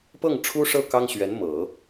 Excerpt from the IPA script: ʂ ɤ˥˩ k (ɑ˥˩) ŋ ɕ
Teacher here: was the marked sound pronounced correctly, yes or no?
no